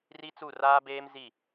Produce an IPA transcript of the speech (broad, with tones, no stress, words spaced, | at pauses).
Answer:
ri˦t͡su˦˨ raː˦beː˦m zi˦˨